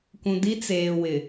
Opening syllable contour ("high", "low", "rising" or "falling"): low